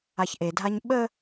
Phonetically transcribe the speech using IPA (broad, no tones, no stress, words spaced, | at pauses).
açʔedʱaɲ ɓə